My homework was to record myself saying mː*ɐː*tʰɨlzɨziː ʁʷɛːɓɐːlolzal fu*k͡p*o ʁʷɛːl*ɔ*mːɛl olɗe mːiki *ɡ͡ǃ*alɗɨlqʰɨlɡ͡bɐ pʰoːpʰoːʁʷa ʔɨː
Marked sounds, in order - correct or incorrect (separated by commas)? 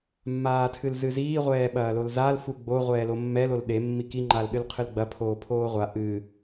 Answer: incorrect, incorrect, incorrect, incorrect